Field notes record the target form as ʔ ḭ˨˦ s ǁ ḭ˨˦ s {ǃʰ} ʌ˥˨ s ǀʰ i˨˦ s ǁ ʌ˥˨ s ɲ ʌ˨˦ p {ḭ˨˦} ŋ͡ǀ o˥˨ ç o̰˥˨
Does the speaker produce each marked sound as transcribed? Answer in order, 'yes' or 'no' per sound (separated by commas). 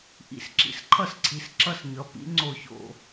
yes, yes